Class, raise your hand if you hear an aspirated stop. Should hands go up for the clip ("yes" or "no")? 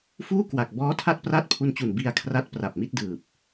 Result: yes